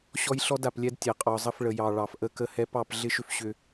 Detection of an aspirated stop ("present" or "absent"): absent